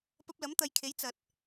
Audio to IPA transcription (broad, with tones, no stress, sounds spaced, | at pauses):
p ɐ˧ p̚ l ɐ˨˥ m t̪ ɐ˨˧ j kʰ e˨˥ j t͡s ɐ˨ t̚